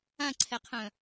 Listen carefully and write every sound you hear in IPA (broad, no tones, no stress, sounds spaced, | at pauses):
ã ǀʰ ɛ qʰ œ̃